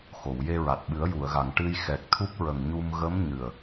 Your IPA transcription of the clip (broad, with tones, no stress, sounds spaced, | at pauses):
x o˨˩˨ w j e˧ ɹ a˨˩ t̚ ɓ ɨ˨˩˦ ə̯ j u˨˩˨ ə̯ ɣ a˨˩˨ ŋ ʈ ɨ˧ j x ɛ˨˩ k̚ t̪ʰ u˦˥ p̚ ɹ ə˨˩ ŋ ɲ u˧ m ɣ ə˧˥ m ɲ ɨ˨˩ ə̯